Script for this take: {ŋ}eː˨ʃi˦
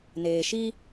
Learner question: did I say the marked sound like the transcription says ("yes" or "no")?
no